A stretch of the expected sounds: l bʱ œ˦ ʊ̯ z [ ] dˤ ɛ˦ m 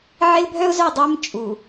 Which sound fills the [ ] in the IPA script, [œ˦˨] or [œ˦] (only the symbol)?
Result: œ˦˨